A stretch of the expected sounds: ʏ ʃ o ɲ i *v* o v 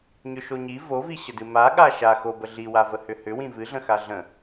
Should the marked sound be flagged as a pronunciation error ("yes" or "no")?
no